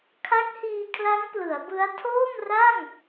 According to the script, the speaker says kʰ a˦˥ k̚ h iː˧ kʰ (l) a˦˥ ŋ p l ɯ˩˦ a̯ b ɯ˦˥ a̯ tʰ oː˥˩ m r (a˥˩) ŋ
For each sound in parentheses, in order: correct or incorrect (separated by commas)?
correct, correct